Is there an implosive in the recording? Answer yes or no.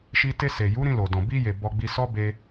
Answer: no